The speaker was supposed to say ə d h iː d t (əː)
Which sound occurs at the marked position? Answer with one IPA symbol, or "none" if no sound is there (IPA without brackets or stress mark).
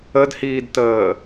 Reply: əː